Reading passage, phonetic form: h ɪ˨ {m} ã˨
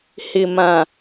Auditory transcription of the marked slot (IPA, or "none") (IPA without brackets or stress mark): m